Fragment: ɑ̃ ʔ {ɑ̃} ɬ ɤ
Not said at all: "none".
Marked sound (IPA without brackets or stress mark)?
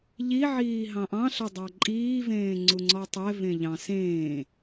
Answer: ɑ̃